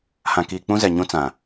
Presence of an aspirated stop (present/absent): absent